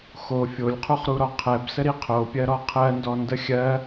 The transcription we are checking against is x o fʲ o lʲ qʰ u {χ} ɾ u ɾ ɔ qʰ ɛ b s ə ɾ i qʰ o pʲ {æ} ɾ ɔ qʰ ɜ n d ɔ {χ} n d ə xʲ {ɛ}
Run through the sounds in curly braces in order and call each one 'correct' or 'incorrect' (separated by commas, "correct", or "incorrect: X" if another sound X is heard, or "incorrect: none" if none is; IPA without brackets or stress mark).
correct, incorrect: ɜ, incorrect: none, incorrect: ɜ